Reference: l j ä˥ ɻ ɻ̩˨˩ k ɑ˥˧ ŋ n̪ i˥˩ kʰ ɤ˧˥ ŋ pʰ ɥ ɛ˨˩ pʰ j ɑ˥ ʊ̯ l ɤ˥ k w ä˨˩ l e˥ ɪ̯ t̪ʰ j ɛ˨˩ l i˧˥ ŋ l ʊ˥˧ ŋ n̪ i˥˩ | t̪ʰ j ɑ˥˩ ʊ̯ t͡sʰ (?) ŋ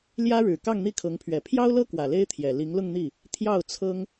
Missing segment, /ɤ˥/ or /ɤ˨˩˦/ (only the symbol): ɤ˥